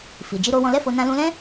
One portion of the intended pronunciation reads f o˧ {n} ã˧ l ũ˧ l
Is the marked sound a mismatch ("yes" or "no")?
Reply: no